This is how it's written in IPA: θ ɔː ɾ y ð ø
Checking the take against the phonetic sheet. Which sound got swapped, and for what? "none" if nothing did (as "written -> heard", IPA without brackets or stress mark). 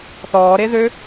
y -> e